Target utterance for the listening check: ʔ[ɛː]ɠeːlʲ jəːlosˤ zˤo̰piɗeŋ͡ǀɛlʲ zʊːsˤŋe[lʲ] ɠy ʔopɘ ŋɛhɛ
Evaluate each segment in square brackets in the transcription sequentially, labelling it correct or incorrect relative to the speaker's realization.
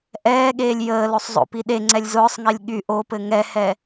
correct, correct

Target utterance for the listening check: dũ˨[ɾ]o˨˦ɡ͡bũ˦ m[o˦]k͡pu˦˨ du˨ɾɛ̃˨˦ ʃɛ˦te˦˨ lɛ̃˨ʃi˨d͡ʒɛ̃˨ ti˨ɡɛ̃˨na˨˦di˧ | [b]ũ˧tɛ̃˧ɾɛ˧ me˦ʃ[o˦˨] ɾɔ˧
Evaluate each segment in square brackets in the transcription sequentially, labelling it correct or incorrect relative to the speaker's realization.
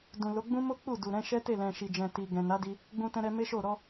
incorrect, correct, incorrect, correct

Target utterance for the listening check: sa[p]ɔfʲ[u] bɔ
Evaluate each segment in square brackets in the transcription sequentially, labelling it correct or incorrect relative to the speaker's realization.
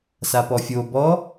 correct, incorrect

